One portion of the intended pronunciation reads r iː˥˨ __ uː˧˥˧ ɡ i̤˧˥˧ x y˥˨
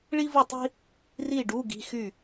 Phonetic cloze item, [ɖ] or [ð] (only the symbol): ɖ